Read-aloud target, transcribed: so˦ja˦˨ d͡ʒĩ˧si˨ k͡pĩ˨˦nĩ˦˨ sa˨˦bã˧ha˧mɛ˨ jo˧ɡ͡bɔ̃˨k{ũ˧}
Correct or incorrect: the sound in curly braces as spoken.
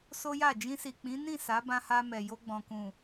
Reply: incorrect: ũ˨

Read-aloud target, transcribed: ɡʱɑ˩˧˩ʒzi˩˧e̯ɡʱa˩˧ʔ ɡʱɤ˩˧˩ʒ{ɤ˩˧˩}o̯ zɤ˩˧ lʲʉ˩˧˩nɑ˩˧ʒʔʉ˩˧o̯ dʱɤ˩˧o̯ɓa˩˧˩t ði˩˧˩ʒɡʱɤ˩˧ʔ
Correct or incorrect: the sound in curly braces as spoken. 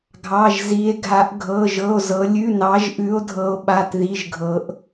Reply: correct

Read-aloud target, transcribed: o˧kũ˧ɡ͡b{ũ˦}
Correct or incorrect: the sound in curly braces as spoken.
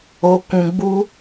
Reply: incorrect: u˦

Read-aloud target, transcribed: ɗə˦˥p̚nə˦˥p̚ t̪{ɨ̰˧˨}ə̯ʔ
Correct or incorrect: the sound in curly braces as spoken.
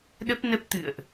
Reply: correct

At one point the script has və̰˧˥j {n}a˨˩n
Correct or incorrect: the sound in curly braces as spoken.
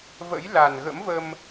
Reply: incorrect: l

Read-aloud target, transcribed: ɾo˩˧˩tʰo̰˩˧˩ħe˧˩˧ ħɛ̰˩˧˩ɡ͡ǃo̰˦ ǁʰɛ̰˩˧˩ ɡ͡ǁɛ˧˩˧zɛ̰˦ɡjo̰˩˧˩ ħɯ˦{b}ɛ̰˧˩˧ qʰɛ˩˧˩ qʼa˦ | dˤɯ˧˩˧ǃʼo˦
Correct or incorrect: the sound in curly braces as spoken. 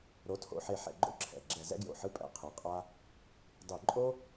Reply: incorrect: pʼ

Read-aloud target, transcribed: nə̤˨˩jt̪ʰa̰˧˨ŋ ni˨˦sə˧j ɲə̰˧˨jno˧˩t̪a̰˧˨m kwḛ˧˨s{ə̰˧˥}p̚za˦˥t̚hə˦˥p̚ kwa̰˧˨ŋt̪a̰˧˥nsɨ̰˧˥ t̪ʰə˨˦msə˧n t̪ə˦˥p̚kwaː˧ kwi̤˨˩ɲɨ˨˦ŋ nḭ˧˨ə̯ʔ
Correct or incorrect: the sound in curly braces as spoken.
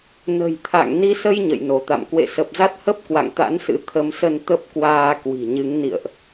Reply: incorrect: ə˨˩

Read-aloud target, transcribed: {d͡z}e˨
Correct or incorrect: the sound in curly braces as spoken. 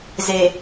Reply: incorrect: z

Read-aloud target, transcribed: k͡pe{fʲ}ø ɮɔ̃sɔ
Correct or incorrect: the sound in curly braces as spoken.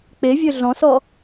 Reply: incorrect: vʲ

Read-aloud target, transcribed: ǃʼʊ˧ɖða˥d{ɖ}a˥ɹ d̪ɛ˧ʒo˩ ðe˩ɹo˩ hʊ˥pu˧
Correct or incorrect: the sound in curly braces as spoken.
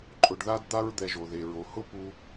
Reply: incorrect: d̪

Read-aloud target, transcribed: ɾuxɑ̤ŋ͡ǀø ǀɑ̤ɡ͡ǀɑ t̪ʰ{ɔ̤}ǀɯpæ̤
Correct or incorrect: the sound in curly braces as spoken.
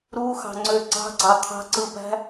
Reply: incorrect: ɑ̤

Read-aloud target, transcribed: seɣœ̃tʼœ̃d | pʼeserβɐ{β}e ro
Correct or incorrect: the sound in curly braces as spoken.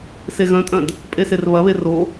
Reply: correct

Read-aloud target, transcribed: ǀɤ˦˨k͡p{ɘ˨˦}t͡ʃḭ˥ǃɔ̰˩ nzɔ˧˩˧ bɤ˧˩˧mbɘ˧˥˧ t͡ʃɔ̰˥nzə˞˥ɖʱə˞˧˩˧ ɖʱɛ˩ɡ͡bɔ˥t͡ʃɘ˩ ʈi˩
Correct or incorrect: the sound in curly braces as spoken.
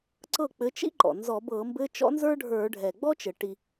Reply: correct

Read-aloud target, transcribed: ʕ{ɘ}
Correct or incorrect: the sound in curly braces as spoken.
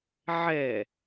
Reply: incorrect: ɛ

